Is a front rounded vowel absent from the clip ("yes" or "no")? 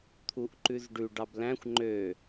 no